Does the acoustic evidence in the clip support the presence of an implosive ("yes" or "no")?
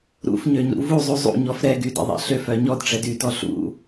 no